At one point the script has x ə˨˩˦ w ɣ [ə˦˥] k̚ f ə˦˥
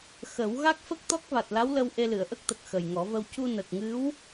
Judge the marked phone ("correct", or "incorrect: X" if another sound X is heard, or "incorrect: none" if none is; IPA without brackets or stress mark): incorrect: a˦˥